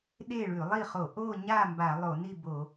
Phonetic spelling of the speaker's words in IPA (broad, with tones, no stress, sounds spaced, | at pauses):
ɗ e˥˨ ɭ ʉ˧˩˧ lˠ i˥˨ χ o˧˩˧ ʔ o˥˨ ɲ a˥˨ m b a˧˩˧ lˠ o˧˩˧ n i˥˨ b o˧˩˧